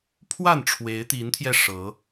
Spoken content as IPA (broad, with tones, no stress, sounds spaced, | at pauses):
pʰ w a˥˨ n ʈ͡ʂʰ w e˨˦ ɪ̯ t̪ i˨˦ n t̪ʰ j ɛ˧ ʂ ɤ˨˦